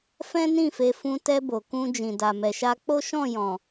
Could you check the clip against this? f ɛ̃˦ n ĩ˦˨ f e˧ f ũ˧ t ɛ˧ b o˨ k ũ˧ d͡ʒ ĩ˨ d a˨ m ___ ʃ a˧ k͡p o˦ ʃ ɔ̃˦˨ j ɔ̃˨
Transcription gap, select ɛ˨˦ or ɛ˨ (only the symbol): ɛ˨